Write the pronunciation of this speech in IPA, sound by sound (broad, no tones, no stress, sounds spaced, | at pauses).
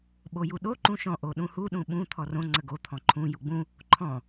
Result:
ɓ o j u ɗ o ǃ ũ ʃ ɔ̃ ʔ o ɗ ũ h u ɗ ũ ɓ ũ t̪ʰ ɔ r õ ŋ͡ǀ ə ɡ o t̪ʰ ɔ̃ ǃʰ ũ j u ɡ͡b ũ | ǃʰ ɔ̃